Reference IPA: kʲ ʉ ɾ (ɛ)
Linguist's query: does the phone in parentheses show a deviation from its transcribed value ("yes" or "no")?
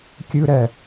no